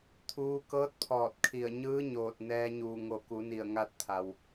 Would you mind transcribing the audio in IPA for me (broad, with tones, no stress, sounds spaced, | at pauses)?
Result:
t̪ʰ uː˧ k ɤː˧˥ t̚ pʰ ɔː˧˩ t̚ kʰ i˧˩ ə̯ ɲ ɯː˧˥ ɲ oː˧˩ t̚ n ɛː˧ ɲ uː˧˩ ŋ o˧˩ k u˩˧ n i˧˩ ə̯ ŋ a˧ t̚ t̪ʰ a˩ w